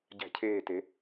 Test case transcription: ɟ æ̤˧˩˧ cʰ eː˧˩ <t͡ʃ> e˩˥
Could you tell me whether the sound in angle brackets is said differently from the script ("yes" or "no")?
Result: yes